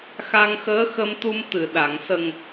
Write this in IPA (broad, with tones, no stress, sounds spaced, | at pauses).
x a˧ ŋ x əː˧˥ x ə˧ m t̪ u˧ m t̪ ɨ˨˩˨ ɗ a˨˩˨ ŋ s ə˨˩ ŋ